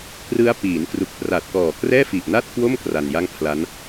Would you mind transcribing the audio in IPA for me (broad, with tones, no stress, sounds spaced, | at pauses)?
k r ɯ˦˥ a̯ p iː˩˦ n k r u˨˩ k̚ p r a˨˩ t̚ k ɔː˨˩ k r ɛː˥˩ f i˨˩ ʔ n a˥˩ t̚ k w o˥˩ m k r a˧ n j a˥˩ ŋ pʰ l a˦˥ n